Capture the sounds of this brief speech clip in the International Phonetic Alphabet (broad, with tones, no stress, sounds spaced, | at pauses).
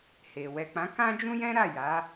h e˨ w ɛ˨ k͡p ã˨˦ k ã˦ d͡ʒ ũ˦ j ɛ̃˦ ɾ a˦˨ j a˨˦